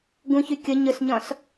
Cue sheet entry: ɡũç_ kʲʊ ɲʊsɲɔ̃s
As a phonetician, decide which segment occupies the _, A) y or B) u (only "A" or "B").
A